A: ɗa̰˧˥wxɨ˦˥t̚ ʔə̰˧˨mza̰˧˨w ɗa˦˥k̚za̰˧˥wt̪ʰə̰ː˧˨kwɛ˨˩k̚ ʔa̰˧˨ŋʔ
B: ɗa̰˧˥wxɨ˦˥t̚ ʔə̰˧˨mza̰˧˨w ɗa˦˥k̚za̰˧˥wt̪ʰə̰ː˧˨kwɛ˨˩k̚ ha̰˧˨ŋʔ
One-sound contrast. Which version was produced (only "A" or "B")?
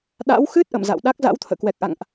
A